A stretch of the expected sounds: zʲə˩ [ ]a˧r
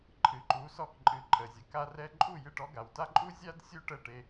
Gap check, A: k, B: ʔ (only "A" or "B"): A